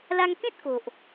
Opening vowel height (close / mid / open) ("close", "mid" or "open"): open